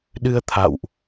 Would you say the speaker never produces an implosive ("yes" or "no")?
no